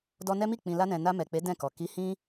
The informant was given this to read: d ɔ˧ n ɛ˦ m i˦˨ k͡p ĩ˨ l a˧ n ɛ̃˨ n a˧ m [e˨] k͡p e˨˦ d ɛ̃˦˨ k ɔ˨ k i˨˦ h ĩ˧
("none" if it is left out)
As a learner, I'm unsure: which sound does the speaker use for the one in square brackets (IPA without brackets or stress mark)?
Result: ɛ˨